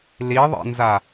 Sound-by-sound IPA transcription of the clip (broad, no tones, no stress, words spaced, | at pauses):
liðˤḛnza